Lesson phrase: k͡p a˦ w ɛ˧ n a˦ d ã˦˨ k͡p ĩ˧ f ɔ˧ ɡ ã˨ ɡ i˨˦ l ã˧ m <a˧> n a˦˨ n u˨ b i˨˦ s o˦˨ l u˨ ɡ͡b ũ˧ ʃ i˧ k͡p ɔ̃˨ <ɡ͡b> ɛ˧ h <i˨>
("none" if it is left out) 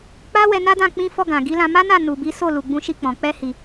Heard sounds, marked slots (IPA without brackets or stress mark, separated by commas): a˦, k͡p, i˨